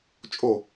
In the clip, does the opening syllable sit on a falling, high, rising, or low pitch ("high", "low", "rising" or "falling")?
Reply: falling